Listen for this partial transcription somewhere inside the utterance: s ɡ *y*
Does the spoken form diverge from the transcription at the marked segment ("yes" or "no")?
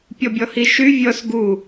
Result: yes